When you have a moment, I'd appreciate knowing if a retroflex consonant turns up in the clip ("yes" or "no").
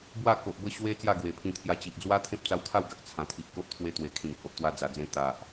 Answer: no